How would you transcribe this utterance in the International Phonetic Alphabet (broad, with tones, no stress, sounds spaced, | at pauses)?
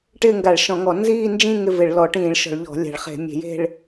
ʈ ɪː˥˧ ŋ ɡ a˧˩˧ ɭ ʃ ɔ̃˧˩˧ ŋ ɔ˧˩˧ n z iː˥˧ n d͡ʒ ĩ˥˧ ŋ ɪ˥˧ v ɪ˧˩˧ ɭ l ɔ˧˩˧ ʈ ĩː˧˩˧ ɭ ʃ ɔ̤˧˩˧ ɭ ʎ ɔ̤˧˩˧ lʲ a̤˧˩˧ ɭ χ e̤˧˩˧ mʲ e̤˧˩˧ j e̤˥˧ ɭ